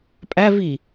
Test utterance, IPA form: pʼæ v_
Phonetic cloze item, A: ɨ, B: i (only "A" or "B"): B